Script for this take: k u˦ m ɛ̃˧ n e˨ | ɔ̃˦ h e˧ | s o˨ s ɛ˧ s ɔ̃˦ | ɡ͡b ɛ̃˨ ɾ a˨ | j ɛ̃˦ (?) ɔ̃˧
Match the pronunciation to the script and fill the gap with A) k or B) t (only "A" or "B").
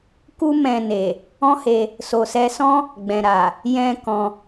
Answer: A